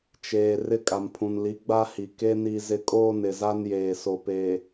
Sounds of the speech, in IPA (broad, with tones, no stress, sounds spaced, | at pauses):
t͡ʃ eː˨ r ɪ˦˨ kʼ a˨ m pʰ ũ˨ n l i˨˦ ɡ͡b a˦ h i˨ k e˦ n i˦ z ɪ˦ kʼ oː˦ n ɪ˨ z a˦ n j eː˨ s o˨ p e˨